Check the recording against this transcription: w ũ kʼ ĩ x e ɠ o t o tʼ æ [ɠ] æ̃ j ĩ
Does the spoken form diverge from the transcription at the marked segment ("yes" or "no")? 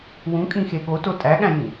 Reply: no